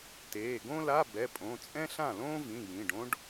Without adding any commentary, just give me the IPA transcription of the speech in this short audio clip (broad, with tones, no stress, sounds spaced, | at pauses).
t eː˩˧˩ ɡ õ˥ l a˧˥˧ b ɛ˩˧˩ pʼ õ˩˧˩ t͡sʼ ɛ̃˥ ɬ ã˥˩ l õː˥ v ĩ˩˧˩ j ĩ˩˧˩ ɖ õ˥ ɖ